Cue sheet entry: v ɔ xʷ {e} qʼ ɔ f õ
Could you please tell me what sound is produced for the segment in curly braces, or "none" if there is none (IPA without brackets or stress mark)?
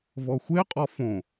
e